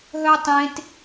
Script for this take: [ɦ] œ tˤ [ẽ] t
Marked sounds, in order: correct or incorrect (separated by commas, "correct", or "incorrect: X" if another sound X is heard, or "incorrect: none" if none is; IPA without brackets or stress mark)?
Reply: correct, correct